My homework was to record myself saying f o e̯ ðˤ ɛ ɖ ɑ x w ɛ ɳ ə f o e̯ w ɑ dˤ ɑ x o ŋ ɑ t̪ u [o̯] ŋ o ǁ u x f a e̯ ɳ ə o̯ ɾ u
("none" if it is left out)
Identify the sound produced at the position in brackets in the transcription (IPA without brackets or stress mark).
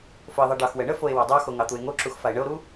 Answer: e̯